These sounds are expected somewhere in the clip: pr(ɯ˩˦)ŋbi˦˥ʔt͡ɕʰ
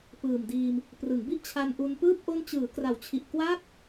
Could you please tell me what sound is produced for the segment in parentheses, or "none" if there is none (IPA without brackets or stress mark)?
ɯ˩˦